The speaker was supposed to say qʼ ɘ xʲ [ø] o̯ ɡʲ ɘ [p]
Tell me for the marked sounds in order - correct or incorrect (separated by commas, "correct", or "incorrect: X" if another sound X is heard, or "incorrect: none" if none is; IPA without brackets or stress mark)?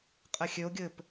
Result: correct, correct